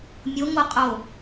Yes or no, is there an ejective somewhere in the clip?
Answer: yes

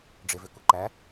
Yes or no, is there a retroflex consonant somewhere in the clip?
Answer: yes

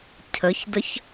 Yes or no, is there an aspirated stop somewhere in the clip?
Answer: yes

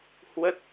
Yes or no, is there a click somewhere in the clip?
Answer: no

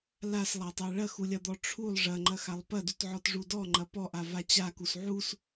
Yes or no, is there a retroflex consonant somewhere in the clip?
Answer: yes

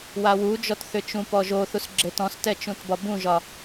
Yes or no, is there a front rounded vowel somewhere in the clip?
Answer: yes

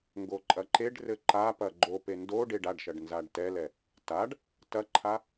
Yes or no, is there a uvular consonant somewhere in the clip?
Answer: no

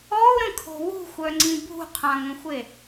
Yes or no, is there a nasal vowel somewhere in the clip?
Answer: yes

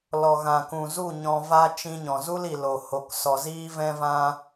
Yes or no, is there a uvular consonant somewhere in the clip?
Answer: no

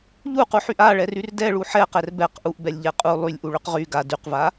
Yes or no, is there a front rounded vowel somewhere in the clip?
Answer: yes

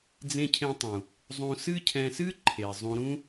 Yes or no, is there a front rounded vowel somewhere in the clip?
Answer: no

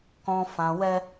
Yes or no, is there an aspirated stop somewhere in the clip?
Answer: no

